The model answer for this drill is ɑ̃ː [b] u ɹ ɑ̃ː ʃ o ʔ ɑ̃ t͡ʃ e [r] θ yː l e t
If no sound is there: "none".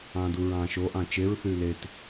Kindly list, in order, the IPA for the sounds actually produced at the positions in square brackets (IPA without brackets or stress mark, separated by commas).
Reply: d, ɹ